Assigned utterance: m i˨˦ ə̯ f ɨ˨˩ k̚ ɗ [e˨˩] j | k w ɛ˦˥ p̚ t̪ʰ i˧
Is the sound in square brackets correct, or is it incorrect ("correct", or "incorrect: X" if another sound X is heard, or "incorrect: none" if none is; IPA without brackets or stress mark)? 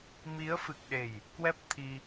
correct